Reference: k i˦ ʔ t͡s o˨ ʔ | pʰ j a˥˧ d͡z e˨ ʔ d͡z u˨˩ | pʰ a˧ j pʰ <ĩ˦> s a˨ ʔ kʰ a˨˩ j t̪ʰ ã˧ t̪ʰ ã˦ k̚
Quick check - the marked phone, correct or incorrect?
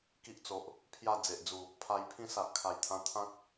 correct